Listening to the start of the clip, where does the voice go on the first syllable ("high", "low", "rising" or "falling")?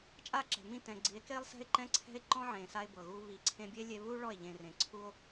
falling